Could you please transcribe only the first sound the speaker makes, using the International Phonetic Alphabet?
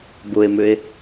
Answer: b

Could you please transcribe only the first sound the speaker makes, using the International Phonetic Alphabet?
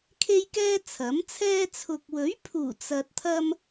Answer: kʰ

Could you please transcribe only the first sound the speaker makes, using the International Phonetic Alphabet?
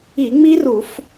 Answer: i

